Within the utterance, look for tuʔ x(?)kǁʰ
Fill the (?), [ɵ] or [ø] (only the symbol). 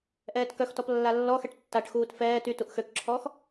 ø